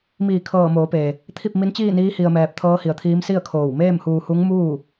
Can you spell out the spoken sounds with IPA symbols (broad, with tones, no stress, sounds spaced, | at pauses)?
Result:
m iː˧˩ kʰ ɤː˧˩ m oː˩˧ p eː˩ | t̪ʰ i˥˨ p̚ m i˧˥ n t͡ɕ iː˥˨ n iː˧˥ h i˧ ə̯ m ɛː˧ p̚ t̪ʰ ɤː˧˥ h i˩˧ ə̯ t̪ʰ iː˧˥ m s i˥˨ ə̯ kʰ oː˧˩ w m eː˥˨ m h uː˧ h u˧˥ ŋ m uː˥˨